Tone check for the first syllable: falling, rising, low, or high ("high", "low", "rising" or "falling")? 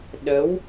rising